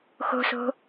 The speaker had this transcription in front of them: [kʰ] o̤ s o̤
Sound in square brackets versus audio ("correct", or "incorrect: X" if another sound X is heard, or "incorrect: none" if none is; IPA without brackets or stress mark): incorrect: x